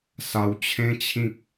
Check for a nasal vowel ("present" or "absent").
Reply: present